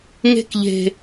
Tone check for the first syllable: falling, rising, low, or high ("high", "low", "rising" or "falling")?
high